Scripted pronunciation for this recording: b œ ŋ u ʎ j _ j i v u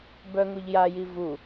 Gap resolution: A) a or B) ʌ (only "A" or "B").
A